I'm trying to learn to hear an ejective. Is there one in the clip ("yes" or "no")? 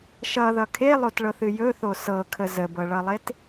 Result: no